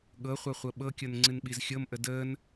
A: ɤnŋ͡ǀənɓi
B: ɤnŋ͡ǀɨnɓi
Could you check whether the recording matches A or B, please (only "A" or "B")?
B